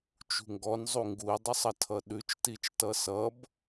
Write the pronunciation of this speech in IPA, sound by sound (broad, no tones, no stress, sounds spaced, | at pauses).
t͡ʃ ṳ ŋ ɡ ɔ n zˤ u ŋ ɡ u i̯ dˤ ø sˤ ʌ tʰ ʌ ɗ ʉ t͡ʃ t i t͡ʃ t ʌ s ʌ b